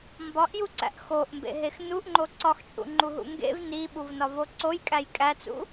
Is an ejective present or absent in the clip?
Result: present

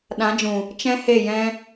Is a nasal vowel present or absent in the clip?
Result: present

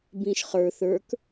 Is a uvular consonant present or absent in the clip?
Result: present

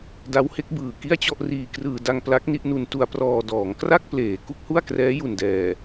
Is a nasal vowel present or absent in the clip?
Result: absent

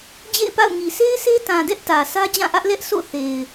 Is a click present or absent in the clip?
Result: absent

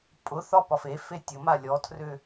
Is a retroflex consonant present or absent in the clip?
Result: absent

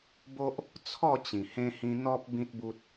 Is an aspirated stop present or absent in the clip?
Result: present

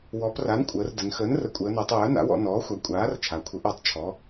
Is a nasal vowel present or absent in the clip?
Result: absent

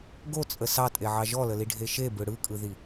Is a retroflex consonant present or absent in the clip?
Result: present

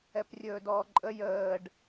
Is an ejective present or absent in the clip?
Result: present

